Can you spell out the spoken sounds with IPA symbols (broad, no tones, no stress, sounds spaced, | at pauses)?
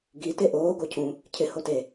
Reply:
ɡ i t e ʔ oː ɡ o cʰ ũ | cʰ ɪ h o t e